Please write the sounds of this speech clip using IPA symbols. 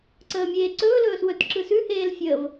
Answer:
ǀəːmʲeːǀɵː lɵːswɵt ǁɯsʉ heːlfʲəːv

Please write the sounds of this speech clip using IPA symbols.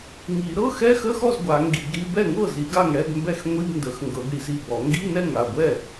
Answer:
ŋi˨˩˦ ɾɤ˧˥˧xɛ˧˥˧xə˧˥˧xɔ˥˩z ɡʷa˨˩˦ŋɡi˨˩˦ɡɾi˧˥˧ bɛ˥˩ŋɤ˥˩zi˨˩˦ɡ a˥˩ŋɽɛ˧˥˧ɡmbɛ˥˩x ŋʷi˧˥˧bndə˨˩˦xŋɡɤ˨˩˦ɡɽi˨˩˦z i˥˩bɔ˨˩˦ ŋɡi˧˥˧ nɛ˥˩ŋa˥˩ɡʷɛ˥˩

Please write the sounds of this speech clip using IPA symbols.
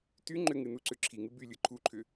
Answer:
ty ŋ͡ǃʏŋɨnuǀʏ ǁʰiŋɨ bylʲɯ ǃʰuǃʰʏ

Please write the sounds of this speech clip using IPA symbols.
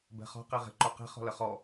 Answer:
bɛ̤χɔ̤ qeʁe̤ǃoqe̤ χɔ̤ləχɔ

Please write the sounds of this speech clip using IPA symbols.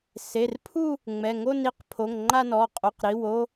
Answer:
se˩˧˩rpʰu˥˧ | ŋ͡mɛ˩˧˩ŋo˥˧n i˥˧qpʰo˩˧˩ŋŋ͡ǃa˥˧nɔ˩˧˩ qʼo˩˧˩qɾi˩˧˩wo˥˧

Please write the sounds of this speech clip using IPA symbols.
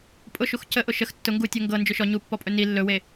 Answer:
pʼʊʃux cəʔʊ ʃəx tːʊ ŋɡutʲo ŋɡɤ nd͡ʒɵʃɔ ɲupːɔpʼɵ ni lːɵwe

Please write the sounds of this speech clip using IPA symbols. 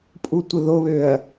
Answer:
pʼutʷəðoβøɐ̯

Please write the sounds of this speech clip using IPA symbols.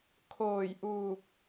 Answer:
kʰoː˧˩jʔuː˧˩k̚

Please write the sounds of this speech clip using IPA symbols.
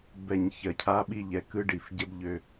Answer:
bɛ˨ɲ çɜ˨cʰa˦ɓi˦˨ ʎɛ˨ kɯ˦ɖi˨fɟə˦b ʎø˦

